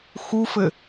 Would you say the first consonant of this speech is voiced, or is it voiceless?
voiceless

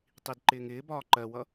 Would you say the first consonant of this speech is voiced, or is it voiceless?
voiceless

